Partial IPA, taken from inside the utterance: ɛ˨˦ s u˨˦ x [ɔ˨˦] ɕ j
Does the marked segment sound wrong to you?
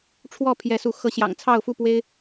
yes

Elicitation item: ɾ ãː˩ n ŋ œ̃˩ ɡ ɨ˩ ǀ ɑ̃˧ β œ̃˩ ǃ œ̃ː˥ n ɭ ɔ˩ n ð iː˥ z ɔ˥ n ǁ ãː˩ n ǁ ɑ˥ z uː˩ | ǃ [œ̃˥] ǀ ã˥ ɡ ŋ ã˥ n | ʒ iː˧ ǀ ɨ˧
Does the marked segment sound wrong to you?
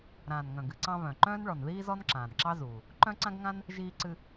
no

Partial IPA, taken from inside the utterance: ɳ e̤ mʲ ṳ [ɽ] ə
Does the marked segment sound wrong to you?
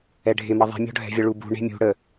no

